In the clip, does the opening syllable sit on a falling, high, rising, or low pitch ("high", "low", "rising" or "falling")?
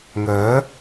rising